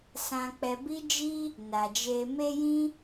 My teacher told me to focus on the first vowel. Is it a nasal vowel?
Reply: yes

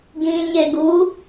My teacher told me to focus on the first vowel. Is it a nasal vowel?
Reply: yes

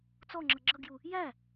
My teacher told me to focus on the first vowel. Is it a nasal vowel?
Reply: no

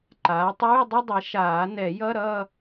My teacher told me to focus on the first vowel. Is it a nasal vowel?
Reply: no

